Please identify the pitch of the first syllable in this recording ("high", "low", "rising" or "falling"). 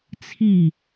falling